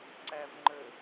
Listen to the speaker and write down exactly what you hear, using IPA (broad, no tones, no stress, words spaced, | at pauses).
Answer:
ǀævŋ͡ǃə